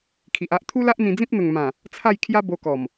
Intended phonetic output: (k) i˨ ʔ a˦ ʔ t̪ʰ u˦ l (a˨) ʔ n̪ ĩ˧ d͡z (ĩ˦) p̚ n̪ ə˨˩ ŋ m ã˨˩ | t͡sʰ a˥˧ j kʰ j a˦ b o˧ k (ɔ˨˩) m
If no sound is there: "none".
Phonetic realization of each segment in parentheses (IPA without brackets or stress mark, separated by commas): kʰ, a˦, ĩ˦, ɔ˨˩